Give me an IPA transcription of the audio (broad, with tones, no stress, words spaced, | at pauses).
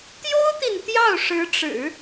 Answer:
t̪jo˥ʊ̯t̪i˨n t̪jɑ˥˩ʊ̯ʂɻ̩˧˥ʈ͡ʂɻ̩˨˩˦